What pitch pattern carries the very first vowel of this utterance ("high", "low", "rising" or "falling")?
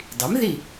rising